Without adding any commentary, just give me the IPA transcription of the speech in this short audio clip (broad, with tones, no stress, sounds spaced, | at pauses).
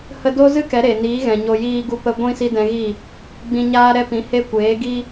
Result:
h ə˧ d o˦ z ɨ˦ k ɛ˨˦ ɾ e˨ n iː˨˦ ɣ ɛ̃˨ ɲ o˧ j iː˧ ɡ u˧ p ə˧ ɡʷ ĩ˧ s i˦ d ɛ̃˧ ɣ i˦˨ | ɡ͡b ĩ˧ ɲ aː˦ ɾ ɛ˦ p ĩ˨˦ h e˦ kʷ eː˨˦ ɡ i˦